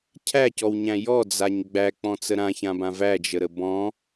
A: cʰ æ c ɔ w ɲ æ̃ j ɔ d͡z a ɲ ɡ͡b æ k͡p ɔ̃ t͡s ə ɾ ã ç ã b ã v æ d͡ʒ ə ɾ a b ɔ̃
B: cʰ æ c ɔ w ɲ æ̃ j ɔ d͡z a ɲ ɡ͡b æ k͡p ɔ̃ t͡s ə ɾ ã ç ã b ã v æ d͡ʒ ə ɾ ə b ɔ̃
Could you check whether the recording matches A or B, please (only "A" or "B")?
B